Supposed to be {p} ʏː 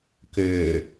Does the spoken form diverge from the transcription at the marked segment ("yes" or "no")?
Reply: yes